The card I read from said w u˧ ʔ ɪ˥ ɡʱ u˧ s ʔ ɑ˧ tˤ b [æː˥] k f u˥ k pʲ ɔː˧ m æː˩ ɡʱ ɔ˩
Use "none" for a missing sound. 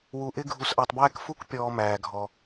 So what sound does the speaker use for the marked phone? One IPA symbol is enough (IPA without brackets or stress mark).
æː˥